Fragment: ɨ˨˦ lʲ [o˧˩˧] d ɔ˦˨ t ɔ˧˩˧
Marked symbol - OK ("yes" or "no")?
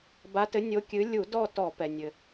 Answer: no